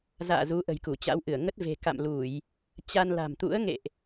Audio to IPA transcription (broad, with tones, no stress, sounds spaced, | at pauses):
z a̰ː˧˨ z u˨˦ ʔ ə̤˨˩ j k u˧˩ t͡ɕ a̰˧˥ w ʔ ɨ˧˩ ə̯ ŋ ə˦˥ t̚ v e̤˨˩ k a̰˧˨ m l u˧˩˨ j | t͡ɕ a˧ n l a̤˨˩ m t̪ ṵ˧˥ ə̯ ŋ ḛ˧˨ ʔ